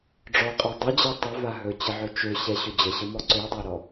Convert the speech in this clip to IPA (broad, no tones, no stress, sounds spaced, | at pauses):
ɖ͡ʐ ɔ qʼ a dˤ ɵ d͡ʑ ɛ tˤ ɵ v a ɦ ɵ t͡ɕ ə ʕ ɵ t͡ʃ ø ɕ ɛ ɕ ɵ d͡ʑ ə ɕ ə m ɔ ǀ ø dˤ o ɾ ɔ